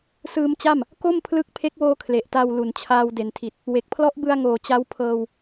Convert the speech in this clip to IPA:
s ɯː˧ m t͡ɕ a˥˩ m | k o˥˩ m pʰ l ɯ˦˥ k̚ pʰ e˦˥ k̚ w oː˧ kʰ l e˨˩ ʔ t a˧ w l u˨˩ n t͡ɕʰ aː˧ w d e˨˩ n tʰ i˨˩ t̚ | w e˨˩ k̚ pʰ l ɔ˦˥ ʔ b ɯ˧ a̯ ŋ oː˨˩ t͡ɕ a˦˥ w pʰ ɤː˧ w

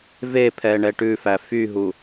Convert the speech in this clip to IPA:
v e pʰ ɛ ɳ ɛ ʈ ʉ f æ f y ɦ u

